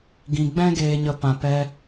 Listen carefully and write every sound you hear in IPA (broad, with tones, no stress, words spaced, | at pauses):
ɡĩ˧ ɡ͡bɛ̃˦ɡeː˧ɲə˧ pã˧pɛ˦